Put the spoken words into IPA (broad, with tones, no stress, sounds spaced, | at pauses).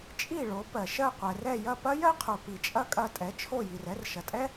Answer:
t͡ʃʼ i˥˩ ɭ o˩˥ p ɜ˩ ʃ ɜ˥˩ qʷ ɛ˩ r ɛ˥˩ j ɐ˥˩ p ɐ˥ j ɜ˥ qʰ o˩ p i˩ t͡ʃʼ ɐ˥˩ kʼ ɐ˥˩ tʼ ɛ˩˥ t͡ʃʰ o˥˩ j i˩ r ɛ˥ r ʃ ɐ˩ tʼ ɛ˥